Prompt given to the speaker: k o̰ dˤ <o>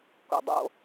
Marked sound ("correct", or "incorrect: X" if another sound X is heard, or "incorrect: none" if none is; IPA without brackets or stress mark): incorrect: o̰